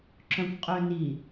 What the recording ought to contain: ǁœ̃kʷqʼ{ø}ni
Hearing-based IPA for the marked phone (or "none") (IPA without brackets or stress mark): ø